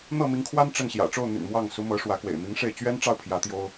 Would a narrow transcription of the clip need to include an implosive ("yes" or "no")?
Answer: no